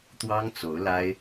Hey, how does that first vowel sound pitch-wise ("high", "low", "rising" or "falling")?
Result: high